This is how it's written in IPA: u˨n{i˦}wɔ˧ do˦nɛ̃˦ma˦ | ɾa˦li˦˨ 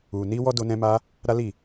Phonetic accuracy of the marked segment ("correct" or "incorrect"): incorrect